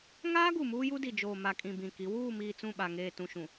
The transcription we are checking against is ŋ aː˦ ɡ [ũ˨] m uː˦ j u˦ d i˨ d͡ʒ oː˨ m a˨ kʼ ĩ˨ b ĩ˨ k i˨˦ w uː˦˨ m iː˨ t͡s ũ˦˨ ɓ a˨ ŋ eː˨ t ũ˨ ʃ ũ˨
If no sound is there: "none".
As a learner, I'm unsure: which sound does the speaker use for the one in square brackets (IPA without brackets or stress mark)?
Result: u˨